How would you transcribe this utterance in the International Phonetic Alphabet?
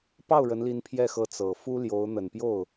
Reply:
p ɑ˥˩ ʊ̯ ɻ ə˧˥ n l i˧˥ n pʰ j ɛ˥˩ x ɤ˧˥ t͡s ɤ˨˩ f u˥ l j o˧˥ ʊ̯ n̪ ə˨˩ n p j o˥˩ ʊ̯

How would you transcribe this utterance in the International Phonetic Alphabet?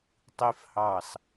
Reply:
tˤ i˦ f h ɑ˦˨ s

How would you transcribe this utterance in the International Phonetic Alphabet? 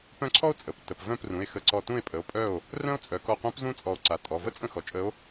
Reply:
p œ̃˥˩ ǀʰ ɔ˥ o̯ t͡sʼ ə˩˧˩ p t ə˩˧˩ p v œ̃˥˩ p r ũ˩˧˩ e̯ x ə˧˩ ǀ ɔ˧˩ t ũ˥˩ e̯ pʼ ə˩˧˩ o̯ pʼ œ˥˩ o̯ | r œ̃˥ o̯ t͡sʼ œ˩˧ k ɔ˧˩ qʷ œ̃˧˥ p z ũ˥ t͡sʼ ɔ˧˩ o̯ ǀ a˩˧˩ tʼ ɔ˩˧˩ v ə˥ t͡sʼ ə̃˥˩ x ɔ˩˧ t͡ʃʼ ə˧˥ o̯

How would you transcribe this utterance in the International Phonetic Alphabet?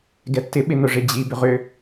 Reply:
ɡ ɛ tː ɪ ɓ ɪ n ʊ ʐ ɪ d͡ʑ i b ʏ ʁ ʏ

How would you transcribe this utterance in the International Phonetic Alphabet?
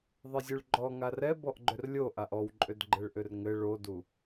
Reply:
ðˤ ɘ zʲ u ɭ ɡ͡ǃ ɔ ŋ a r ɛ b ɔ ʔ ɡ͡ǃ ʏ r lʲ o ʔ a ʔ ɔ w ǃʼ ʏ d ɡ͡ǃ ɘ ɭ ʔ ʏ r ŋ ɘ ɭ o d u

